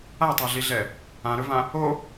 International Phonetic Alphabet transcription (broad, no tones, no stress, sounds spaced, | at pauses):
a tˤ a ɮ i ɮ ɛ | ã ɾ ɵ v ã | o